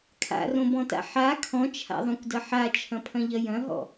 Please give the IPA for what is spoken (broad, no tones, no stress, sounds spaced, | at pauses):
kʰ a̰ r õ b ɔ̃ t a̰ ħ a kʰ ɔ̃ t͡ʃʰ a̰ ðˤ õ kʷ d ɐ ħ a t͡ʃʰ ɐ̃ pʰ ɐ̃ ʎ ɐ j ɐ̃ ɦ ɔ̰